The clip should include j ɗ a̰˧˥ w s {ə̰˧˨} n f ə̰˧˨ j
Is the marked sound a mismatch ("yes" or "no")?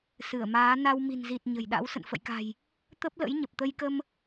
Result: no